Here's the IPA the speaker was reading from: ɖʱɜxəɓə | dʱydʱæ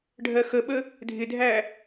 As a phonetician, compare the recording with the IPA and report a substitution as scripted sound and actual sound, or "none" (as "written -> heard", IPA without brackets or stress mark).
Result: y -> ɪ